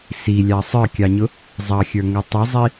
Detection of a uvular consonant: absent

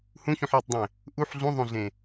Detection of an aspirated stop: absent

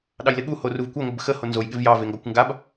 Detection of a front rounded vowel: absent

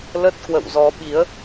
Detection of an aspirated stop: absent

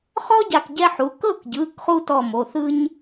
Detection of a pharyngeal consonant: present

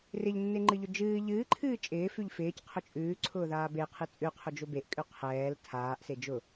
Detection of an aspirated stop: present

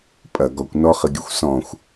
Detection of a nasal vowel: present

